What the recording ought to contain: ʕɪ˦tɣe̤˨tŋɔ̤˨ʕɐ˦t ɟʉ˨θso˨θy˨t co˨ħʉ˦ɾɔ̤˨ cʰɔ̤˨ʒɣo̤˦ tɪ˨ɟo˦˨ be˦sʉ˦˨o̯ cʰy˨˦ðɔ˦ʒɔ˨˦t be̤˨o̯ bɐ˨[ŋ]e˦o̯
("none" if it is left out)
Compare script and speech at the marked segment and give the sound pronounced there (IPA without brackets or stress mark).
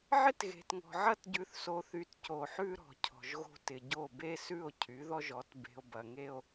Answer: ŋ